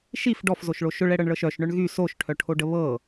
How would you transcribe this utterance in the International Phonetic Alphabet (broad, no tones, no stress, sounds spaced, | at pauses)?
ʃ i f ɖ ɔ f z o ʃ ɭ o ʃ ʊ ɭ ɛ ɽ ɤ ɳ ɭ ɤ ʃ œ ʃ ɳ œ ɳ ɣ y s o ʃ ʈʰ œ ʈʰ o ɖ ə β ɤ